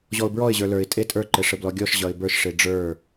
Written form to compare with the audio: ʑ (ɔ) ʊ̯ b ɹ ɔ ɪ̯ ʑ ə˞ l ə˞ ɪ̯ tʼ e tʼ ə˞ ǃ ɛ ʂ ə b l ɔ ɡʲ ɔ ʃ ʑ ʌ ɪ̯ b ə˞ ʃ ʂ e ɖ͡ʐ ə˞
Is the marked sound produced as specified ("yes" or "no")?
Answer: yes